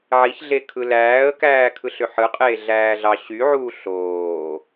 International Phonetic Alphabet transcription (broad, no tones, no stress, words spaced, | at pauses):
ʕiçɮe kʰɯlæːə̯kæː kʰɯɬøħɯqʼeː ɮæːɮɑɕyʕuːɬ oː